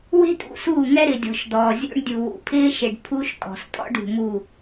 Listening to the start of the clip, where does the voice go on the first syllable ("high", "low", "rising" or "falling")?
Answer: high